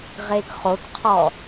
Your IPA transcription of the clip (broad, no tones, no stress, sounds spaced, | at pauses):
ʁ e ɡ χ o t qʰ ɔ